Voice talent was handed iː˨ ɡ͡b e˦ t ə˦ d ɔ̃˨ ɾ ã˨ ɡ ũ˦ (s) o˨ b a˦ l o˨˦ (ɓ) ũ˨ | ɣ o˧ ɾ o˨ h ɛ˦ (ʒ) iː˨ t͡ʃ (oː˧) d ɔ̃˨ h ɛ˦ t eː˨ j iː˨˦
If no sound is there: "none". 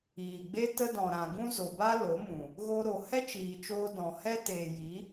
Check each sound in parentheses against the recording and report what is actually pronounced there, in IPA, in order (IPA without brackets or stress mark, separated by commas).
z, m, t͡ʃ, oː˧